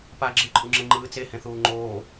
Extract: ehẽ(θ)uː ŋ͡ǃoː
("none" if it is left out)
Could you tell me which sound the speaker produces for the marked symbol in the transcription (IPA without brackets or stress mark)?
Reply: θ